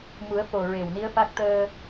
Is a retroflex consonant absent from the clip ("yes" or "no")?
yes